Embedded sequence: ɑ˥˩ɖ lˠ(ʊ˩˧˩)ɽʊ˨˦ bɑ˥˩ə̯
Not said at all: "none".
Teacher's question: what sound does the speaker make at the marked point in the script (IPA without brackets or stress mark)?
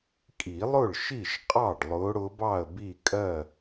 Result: ʊ˨˦